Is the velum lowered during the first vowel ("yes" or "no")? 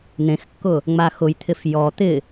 yes